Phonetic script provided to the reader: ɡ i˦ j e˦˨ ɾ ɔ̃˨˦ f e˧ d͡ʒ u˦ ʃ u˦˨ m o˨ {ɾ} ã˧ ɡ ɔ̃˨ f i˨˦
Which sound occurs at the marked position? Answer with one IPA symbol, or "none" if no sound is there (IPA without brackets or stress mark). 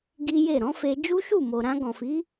ɾ